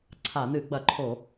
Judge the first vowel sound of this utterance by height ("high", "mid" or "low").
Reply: low